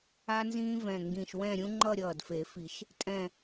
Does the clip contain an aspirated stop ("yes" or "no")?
no